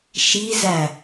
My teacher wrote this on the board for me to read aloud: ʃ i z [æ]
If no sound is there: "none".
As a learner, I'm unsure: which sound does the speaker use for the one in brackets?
æ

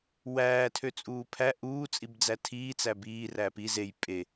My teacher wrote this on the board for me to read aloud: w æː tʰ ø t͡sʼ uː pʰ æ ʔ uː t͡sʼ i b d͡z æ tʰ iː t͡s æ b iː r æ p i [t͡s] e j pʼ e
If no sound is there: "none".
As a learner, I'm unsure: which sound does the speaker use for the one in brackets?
z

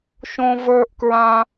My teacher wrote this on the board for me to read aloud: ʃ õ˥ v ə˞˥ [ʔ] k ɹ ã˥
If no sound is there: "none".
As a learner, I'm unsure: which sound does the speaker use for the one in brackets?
ʔ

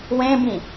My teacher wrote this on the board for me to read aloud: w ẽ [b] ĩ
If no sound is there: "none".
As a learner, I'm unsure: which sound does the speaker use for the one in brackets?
b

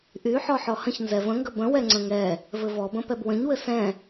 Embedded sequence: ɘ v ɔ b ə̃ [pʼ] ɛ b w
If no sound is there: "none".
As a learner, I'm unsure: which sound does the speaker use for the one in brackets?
p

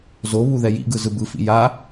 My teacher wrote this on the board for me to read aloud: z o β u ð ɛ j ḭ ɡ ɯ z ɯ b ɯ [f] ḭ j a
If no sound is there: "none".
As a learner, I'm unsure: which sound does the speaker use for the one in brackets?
f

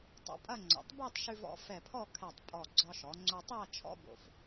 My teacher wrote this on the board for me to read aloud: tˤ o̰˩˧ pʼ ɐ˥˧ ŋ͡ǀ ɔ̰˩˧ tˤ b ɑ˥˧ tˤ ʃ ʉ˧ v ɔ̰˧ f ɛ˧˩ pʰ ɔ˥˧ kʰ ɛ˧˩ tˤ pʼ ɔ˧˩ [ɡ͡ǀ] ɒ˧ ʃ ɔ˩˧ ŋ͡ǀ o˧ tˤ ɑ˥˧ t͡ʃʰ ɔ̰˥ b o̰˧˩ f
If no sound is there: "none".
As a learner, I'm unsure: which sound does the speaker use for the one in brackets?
ɡ͡ǀ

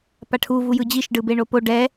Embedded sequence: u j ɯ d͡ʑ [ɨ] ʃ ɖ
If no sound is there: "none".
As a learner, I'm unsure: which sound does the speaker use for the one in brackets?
i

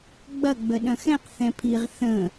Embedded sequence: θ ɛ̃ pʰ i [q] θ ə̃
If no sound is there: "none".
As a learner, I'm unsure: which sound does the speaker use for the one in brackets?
ʁ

